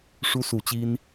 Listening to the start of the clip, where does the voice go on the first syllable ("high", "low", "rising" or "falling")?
high